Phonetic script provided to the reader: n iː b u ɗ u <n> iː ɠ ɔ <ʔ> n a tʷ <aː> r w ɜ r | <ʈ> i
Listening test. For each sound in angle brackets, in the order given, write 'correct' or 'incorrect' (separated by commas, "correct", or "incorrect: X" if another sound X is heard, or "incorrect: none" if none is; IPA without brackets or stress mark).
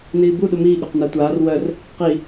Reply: incorrect: m, incorrect: q, correct, incorrect: q